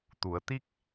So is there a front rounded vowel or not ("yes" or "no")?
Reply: no